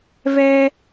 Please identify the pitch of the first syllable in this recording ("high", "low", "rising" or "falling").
high